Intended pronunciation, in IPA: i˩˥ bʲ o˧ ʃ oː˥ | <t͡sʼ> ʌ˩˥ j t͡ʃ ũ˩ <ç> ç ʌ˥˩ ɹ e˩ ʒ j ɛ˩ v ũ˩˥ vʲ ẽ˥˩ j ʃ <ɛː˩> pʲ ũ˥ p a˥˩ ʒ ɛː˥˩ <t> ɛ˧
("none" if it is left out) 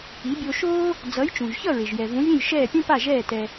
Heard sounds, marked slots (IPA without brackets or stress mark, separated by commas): d͡z, ʒ, ɛː˥˩, t